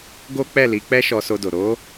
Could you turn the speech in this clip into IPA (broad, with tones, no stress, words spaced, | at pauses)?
ɡo˦k͡pɛ˦˨li˨˦ k͡pɛ˦ʃɔ˧so˧do˨ ɾo˨˦